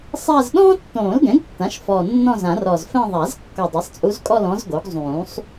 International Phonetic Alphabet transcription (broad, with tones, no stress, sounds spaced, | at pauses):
sˤ a˥˧ z ɗ ɔ̃ː˥ tː õː˨˩˦ l ɡ ɛ̃˩˥ ɡ tː ã˩˥ ʃ f ɔ˨˩ nː ɔ̃˥˧ z ã˨˩˦ r ɔ˨˩ z f ɛ̃˥˧ ðˤ a˨˩˦ z kː ɔ˨˩ dˤ ɛ˩˥ sˤ t͡sʼ u˧˥ z kʼ ɔ˥˧ l ɔ̃˧˥ z ɡ o˩˥ ɡ zˤ ũː˨˩˦ sˤ